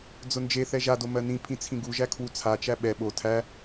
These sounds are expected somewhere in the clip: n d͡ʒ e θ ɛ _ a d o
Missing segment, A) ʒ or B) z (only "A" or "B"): A